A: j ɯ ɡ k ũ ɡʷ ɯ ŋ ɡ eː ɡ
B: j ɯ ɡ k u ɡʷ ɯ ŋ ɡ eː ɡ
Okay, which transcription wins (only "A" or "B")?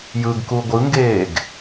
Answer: B